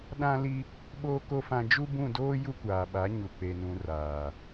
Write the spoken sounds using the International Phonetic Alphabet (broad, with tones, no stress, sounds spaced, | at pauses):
ɗ ã˦ l i˦ | ɓ oː˦ k o˦ f ã˦ d͡ʒ u˦ b ũ˦˨ d oː˦ j u˦ kʷ aː˨ ɓ a˨˦ ɲ u˨ k͡p e˨ n ũ˨ r aː˨